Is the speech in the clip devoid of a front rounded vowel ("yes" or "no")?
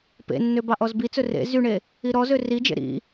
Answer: no